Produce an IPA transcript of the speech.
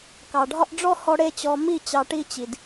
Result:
k ɑ˨ ɖʱ ɒ˦ ʔ ɖ͡ʐ ɔ˦ h ɔ˧ ɽ e˦ t͡ɕ ɔ˧ m i˦˨ t͡ɕ ɑ˧ ʈ i˦ t͡ɕ i˨ d

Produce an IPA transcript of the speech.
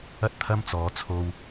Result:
ɐ˥ t̚ t̪ʰ ɐ˥ m t͡s ɔː˨˧ t͡sʰ o˧ w

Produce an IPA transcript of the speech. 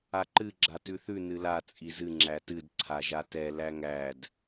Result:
a ǃ ɨ ɡ͡ǁ a t ʉ θ ʉ n ɨ l a t͡sʼ i z ɨ ŋ͡ǁ æ t ɨ d ǀʰ a ʒ a t ɛ l æ ŋ æ d

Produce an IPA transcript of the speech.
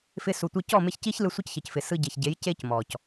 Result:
f ɪ˧ s u˨ tʷ ɯ˧ c ɔ˦˨ m ɪ˧ ç c i˦ ç l ɯ˧ sʷ ɯ˦ c ç ɘ˨ c f ɪ˨ s ɯ˧ ɟ e˨ ç ɟ e˨˦ j c e˦ c m ɔ˨ c

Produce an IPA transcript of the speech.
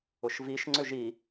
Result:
ʊ ʃ v i ʃ ŋ͡ǀ ʏ ʒ i

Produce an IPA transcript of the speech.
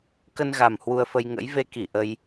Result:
k ə˧ n ɣ a˨˩ m h w u˧ ə̯ f ə˧ j ŋ ə̰˧˥ j v e˧ k i˧˩ ʔ ə˧ j

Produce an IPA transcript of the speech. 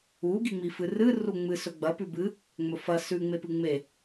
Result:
u ɡ i ŋ͡m i f ɨ r ɨ r u ŋ͡m ɨ s ɵ ɡ͡b ɐ p ʉ b ɨ | ŋ͡m ɵ f ɐ s ʉ ŋ͡m e p ɨ ŋ͡m e

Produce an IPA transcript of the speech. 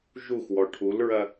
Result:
ʒ u x w ɔ ʈʰ u l ɹ ɐ

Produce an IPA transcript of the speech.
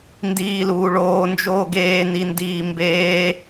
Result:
n d iː l uː ɭ oː n d͡ʒ oː ɡ eː n i n d iː m b eː

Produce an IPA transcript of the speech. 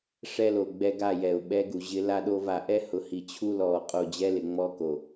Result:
ʂ ɛ˦ l o˨ ɡ͡b ɛ˦ ɡ a˦˨ j ɛ˨ ʊ̯ ɓ ɛ˦ ɡ u˨ ʑ ɪ˦ l a˦ ɗ o˦ v a˨ ʔ ɛ˦ h ʊ˨ h i˨ t͡ɕʰ u˦ l ɔː˨ qʼ o˦˨ d͡ʑ ɛ˦ l ɪ˨ ŋ͡m ɔ˦ k o˨

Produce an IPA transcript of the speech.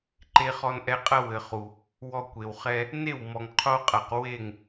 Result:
ǃ e˧ χ ɔ˧ n ʔ ɛ˧ qʼ ɐ˦ w ɘ˨ χ u˨ | w ɔ˧ kʷ e˨ w χ ɛ˧ | n e˦˨ w m ɔ˨ ŋ qʰ o˦ qʼ a˨ q w e˦˨ ŋ

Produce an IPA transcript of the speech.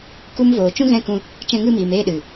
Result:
k u˧ m v oː˨ t͡ʃ ũ˦ ɣ ɛ̃˦˨ k ũ˧ | t͡ʃ ɛ̃˧ ŋ ɨ˦˨ m iː˨ m eː˦˨ ɗ ɨ˨

